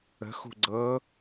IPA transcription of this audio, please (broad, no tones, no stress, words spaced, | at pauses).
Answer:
ə̤xṳ ɡ͡ǀɤ